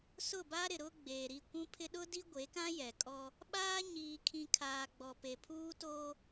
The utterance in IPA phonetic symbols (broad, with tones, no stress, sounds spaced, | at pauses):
s ʊ˦˨ b a˦ ɾ ɪ˨ ɾ ʊ˦ ɡ͡b eː˨ ɾ i˦˨ kʷ ũ˦ pʰ ɪ˦ ɗ ʊ˦ d i˦ ɡʷ e˨˦ k ã˦ j ɛ˨ kʼ ɔ˦ | ɓ aː˦ ɲ iː˨ kʰ ĩ˨ kʰ aː˨ ɡ͡b ɔ˨ p e˨ pʰ uː˦ t o˦